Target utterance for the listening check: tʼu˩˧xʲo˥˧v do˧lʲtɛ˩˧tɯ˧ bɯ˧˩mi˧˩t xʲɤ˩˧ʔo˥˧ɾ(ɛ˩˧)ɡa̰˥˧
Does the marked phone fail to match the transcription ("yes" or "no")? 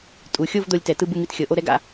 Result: yes